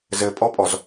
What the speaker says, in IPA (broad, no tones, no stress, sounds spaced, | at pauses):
z ɘ pʼ ɔ pʼ ɔ z